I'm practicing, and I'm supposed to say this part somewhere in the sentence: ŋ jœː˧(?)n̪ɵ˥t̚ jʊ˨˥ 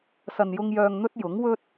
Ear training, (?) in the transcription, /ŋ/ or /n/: ŋ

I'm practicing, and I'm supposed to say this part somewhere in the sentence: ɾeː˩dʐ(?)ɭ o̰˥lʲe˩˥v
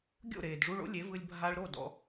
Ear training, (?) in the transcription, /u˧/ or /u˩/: u˧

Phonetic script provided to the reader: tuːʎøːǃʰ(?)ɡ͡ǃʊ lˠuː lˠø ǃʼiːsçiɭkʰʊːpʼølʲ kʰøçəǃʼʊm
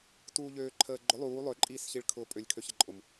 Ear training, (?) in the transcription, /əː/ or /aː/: əː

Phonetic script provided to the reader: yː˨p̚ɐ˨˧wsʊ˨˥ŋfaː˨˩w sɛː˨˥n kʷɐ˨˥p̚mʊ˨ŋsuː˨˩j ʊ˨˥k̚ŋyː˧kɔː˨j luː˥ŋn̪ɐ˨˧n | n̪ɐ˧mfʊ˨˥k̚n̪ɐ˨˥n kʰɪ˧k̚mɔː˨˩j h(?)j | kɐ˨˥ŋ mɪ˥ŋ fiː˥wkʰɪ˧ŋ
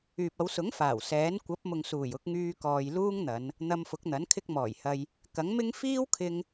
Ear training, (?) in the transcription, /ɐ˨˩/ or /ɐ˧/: ɐ˧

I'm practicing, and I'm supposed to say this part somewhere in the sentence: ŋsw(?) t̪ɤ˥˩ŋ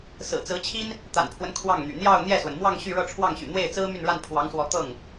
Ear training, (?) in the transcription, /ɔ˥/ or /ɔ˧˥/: ɔ˧˥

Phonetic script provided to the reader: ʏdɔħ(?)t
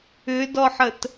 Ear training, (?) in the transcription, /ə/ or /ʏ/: ə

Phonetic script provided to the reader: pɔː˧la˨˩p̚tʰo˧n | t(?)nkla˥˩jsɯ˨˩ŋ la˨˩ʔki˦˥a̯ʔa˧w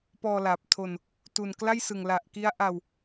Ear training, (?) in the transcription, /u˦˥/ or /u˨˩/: u˨˩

